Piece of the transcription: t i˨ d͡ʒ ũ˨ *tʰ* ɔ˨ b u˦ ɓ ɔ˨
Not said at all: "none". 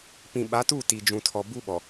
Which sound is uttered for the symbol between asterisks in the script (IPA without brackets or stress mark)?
tʰ